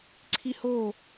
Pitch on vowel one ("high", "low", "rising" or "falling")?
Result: high